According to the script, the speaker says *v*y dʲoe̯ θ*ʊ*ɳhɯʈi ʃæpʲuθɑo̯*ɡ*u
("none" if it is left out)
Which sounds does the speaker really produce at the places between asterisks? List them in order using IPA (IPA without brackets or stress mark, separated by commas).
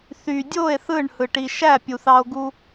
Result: θ, ɯ, ɡ